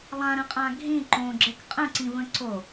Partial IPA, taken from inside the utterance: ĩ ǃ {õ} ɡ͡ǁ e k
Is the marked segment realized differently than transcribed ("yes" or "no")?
no